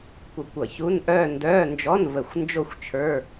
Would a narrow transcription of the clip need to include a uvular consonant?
no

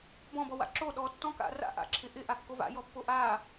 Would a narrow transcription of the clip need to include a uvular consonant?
no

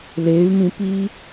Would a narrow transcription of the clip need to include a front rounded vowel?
yes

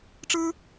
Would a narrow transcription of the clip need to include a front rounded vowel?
no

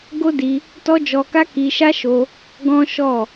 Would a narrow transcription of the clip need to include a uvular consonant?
no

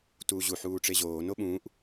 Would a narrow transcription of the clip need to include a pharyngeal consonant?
yes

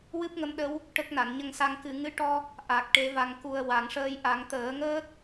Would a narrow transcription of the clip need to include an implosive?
yes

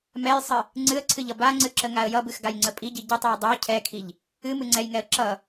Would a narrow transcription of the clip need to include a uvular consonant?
no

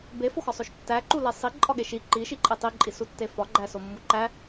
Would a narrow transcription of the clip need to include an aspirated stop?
no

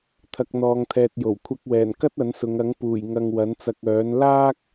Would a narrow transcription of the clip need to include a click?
no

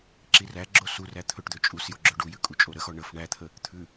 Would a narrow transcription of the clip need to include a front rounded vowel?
yes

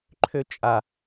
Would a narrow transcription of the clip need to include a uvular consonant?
no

